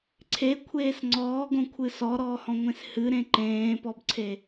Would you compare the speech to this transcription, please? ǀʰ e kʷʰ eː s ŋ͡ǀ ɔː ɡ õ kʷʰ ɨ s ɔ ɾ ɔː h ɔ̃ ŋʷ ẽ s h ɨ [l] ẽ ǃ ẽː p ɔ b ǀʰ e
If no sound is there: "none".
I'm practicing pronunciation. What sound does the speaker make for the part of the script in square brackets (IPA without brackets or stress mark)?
ɾ